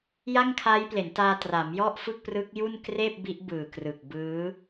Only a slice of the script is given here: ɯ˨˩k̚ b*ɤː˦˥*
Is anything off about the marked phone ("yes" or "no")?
yes